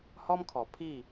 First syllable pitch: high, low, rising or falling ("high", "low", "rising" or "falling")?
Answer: high